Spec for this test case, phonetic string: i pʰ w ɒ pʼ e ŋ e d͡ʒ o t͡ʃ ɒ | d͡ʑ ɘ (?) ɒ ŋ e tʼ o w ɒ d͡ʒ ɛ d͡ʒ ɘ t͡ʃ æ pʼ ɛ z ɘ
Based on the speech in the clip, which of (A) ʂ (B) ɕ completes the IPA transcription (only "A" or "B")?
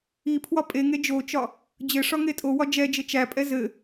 A